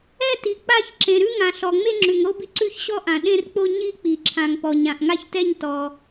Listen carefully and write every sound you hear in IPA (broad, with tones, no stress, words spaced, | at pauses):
ɛ˥˧ti˩ k͡pa˥˧ç ǁẽ˩ɾʉ˥˧ŋã˩ ɬɔ˩ŋ͡me˥˧ŋ͡ǁʉ˩ŋɾo˥˧b i˩ǀʉ˥˧çɕɔ˥˧ʔã˩ ɗẽ˥˧rk͡po˥˧ ɲi˥˧k͡pi˩ǁʰã˩ŋpɔ˩ɲ ã˩ʔŋa˥˧çtɛ˥˧ɲ tɔ˩